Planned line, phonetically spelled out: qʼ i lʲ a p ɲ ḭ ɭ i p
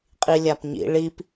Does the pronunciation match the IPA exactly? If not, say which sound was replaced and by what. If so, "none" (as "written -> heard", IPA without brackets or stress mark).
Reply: none